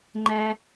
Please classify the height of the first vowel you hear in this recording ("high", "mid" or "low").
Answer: low